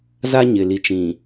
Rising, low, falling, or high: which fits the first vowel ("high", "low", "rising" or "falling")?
high